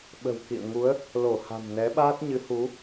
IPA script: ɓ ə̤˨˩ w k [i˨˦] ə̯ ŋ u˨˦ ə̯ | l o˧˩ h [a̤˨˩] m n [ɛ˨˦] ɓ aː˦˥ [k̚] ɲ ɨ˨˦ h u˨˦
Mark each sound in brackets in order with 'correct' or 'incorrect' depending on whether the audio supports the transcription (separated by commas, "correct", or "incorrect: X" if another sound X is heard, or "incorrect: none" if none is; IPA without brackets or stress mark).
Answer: incorrect: ḭ˧˨, correct, correct, incorrect: t̚